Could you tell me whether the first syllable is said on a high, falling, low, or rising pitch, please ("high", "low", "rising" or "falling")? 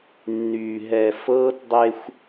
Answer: low